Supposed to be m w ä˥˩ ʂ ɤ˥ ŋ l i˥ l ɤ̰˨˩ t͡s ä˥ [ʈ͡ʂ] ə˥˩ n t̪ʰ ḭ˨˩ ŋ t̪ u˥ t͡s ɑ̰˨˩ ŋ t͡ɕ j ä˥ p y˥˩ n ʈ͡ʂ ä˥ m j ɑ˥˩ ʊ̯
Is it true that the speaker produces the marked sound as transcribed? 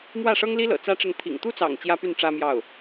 yes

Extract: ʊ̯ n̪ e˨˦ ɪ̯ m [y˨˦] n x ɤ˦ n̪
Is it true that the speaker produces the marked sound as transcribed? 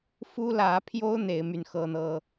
no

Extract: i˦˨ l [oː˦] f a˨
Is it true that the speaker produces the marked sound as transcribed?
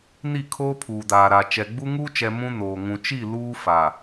no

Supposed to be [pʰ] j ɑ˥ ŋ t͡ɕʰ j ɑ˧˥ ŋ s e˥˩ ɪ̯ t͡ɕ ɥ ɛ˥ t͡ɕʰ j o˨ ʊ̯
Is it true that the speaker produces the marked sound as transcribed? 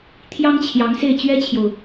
no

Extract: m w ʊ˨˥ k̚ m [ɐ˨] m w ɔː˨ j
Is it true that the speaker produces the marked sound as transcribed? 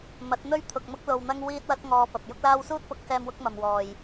yes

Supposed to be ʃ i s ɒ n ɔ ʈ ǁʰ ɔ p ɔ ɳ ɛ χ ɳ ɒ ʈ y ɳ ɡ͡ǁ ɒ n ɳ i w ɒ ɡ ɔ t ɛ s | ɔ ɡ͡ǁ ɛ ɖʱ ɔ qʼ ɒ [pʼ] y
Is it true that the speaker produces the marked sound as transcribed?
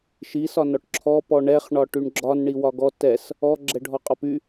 no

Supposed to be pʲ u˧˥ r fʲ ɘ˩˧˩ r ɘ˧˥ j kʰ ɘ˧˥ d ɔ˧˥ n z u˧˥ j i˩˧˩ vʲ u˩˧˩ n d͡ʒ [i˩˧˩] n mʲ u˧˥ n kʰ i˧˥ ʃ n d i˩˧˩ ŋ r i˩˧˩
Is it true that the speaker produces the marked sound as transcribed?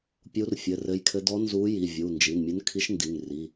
yes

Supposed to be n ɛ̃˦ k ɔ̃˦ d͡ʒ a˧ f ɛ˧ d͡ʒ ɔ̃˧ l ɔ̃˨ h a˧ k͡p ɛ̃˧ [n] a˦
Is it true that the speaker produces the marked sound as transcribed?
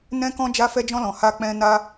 yes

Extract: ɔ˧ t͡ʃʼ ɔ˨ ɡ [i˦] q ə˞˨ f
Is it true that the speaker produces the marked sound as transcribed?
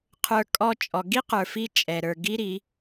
yes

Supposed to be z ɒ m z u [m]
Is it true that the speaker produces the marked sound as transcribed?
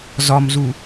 no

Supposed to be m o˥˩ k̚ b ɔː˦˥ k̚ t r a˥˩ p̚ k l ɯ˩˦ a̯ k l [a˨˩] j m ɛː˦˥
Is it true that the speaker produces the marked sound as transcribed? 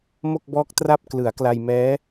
no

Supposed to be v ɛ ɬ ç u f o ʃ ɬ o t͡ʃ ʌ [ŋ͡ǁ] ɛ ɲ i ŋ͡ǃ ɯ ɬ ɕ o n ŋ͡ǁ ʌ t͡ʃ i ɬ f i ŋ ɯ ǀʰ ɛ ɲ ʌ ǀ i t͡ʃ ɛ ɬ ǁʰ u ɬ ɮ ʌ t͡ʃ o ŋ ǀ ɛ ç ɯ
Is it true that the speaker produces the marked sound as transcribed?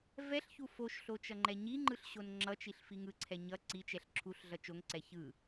no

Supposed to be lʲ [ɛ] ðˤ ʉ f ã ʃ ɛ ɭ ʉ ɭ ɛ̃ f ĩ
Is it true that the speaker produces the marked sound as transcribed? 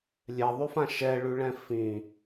yes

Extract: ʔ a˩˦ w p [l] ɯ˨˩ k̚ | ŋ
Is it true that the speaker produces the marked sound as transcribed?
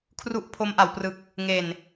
no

